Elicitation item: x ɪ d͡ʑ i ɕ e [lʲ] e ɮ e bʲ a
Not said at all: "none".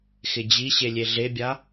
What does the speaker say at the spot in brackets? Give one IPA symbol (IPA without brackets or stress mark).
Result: lʲ